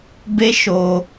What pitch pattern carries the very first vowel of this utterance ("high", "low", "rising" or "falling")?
high